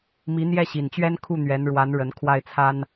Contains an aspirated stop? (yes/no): yes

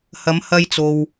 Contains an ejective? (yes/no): no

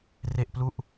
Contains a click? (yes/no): no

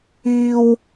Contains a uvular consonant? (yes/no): no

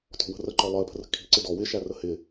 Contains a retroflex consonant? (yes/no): no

